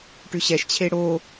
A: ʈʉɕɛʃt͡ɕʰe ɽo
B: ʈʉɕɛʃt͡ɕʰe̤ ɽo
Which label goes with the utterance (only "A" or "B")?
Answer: A